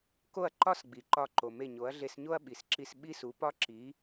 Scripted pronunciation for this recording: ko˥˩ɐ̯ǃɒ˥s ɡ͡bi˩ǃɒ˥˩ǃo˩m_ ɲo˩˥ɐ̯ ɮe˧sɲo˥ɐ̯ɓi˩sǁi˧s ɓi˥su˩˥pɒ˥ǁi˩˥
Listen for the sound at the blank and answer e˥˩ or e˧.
e˥˩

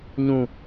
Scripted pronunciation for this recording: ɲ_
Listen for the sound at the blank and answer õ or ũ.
ũ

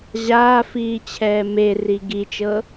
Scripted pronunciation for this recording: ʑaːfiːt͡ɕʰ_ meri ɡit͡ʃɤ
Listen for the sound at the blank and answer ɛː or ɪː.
ɛː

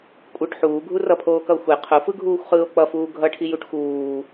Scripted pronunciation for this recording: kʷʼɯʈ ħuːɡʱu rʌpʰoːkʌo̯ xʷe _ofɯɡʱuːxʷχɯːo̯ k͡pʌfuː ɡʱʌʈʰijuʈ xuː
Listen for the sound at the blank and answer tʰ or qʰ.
qʰ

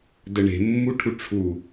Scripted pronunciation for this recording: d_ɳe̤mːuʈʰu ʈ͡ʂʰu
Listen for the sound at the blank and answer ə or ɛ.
ə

